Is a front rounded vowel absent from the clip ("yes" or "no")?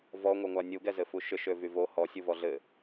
no